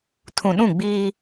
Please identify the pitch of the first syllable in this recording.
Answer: low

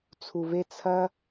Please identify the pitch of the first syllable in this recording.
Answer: low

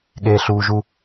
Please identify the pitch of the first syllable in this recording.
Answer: high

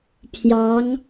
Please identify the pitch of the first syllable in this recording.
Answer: rising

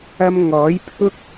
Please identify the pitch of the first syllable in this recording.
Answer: high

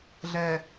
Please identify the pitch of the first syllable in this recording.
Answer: low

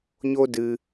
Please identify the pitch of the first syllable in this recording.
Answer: high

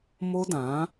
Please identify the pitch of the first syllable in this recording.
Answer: high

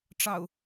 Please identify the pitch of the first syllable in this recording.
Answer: low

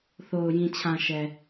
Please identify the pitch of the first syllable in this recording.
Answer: low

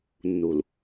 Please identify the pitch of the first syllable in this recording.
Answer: low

